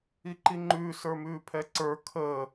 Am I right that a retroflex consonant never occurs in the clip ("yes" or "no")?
yes